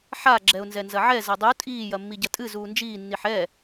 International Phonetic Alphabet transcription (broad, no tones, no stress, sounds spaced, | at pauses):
ħ a ɡ͡ǁ ɛ ʊ̯ n z ɛ n z ɐ ʕ ɛ z ɐ dˤ u tʼ iː j ɐ mː i ɟ ɐ tʼ ɨ z uː n d͡ʒ iː nː i ħ ɛ